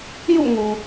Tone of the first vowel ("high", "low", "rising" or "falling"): falling